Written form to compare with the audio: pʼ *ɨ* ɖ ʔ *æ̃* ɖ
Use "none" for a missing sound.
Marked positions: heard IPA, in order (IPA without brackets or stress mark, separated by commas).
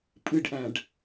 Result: ɨ, æ̃